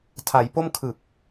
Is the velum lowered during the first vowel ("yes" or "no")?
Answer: no